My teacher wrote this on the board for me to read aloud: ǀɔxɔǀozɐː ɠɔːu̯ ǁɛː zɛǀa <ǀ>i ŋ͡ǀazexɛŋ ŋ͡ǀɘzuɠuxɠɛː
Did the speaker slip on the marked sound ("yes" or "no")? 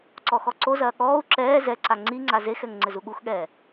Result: yes